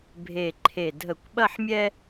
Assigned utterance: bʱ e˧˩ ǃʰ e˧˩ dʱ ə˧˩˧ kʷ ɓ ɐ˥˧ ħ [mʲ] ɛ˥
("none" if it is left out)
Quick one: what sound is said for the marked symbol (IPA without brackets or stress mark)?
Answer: mʲ